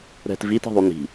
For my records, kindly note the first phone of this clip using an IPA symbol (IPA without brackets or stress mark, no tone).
ɾ